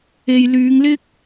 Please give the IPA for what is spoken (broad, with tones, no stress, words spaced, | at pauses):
e˨jlyː˨˧ŋlɪ˥k̚